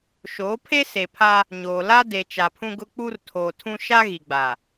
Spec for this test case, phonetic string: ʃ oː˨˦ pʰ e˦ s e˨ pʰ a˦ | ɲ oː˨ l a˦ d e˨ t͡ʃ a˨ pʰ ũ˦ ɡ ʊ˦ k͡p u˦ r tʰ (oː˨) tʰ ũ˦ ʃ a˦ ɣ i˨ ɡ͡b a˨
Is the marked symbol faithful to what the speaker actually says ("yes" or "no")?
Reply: yes